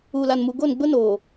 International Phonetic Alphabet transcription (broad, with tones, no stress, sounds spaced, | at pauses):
uː˨ l a˨ n m u˨ ɡ o˦˨ n ɡ͡b ʊ˦ n oː˨